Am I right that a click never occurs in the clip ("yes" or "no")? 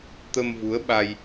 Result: yes